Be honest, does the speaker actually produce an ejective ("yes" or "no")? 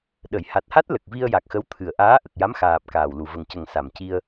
no